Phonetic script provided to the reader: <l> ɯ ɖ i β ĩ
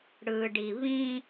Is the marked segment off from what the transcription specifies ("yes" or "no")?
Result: yes